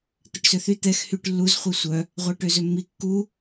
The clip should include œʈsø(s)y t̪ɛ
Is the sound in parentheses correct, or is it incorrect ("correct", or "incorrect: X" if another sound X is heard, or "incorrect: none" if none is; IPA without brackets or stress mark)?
incorrect: θ